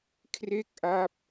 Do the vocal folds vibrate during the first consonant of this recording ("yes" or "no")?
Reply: no